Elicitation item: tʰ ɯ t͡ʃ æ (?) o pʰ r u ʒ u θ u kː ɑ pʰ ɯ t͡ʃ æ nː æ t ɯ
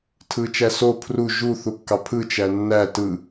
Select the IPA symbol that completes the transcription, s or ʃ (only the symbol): s